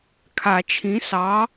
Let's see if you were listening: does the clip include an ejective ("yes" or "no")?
no